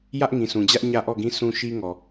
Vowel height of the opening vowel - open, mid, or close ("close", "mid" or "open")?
open